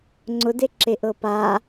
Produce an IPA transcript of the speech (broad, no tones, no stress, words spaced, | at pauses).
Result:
ŋ͡ǀʊdeǁe ʔɤpa